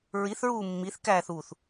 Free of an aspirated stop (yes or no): yes